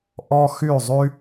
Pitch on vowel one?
high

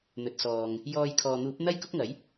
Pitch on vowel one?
low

